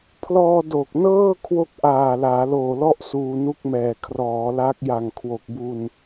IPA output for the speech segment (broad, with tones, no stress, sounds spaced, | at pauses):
pʰ l ɔː˧ d o˨˩ k̚ n ɤː˥˩ kʰ w o˥˩ k̚ ʔ aː˨˩ l aː˩˦ l oː˨˩ l ɔ˥˩ ʔ s uː˧ n u˥˩ k̚ m ɛː˨˩ kʰ r ɔː˩˦ l a˦˥ k̚ j a˨˩ ŋ kʰ w o˨˩ k̚ b u˧ n